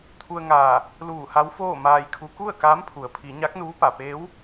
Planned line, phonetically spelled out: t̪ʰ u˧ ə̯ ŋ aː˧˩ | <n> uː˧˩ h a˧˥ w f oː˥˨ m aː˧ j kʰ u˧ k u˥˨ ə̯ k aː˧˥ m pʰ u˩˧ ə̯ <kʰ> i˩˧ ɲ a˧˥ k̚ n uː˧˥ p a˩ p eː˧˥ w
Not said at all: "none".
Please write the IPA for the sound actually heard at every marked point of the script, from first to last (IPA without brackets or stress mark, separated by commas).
l, pʰ